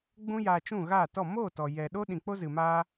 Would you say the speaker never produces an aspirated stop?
yes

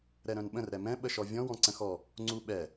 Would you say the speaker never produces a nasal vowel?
no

